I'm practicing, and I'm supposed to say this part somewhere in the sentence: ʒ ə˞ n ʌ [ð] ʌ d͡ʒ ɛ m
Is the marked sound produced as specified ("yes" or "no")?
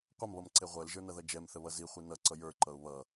yes